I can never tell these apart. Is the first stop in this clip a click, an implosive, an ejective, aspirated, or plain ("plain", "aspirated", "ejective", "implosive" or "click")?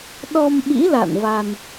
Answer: implosive